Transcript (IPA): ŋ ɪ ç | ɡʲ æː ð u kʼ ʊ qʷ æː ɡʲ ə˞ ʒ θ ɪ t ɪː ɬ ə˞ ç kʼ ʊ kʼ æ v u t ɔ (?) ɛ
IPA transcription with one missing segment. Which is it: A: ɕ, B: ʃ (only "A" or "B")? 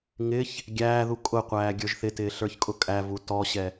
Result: A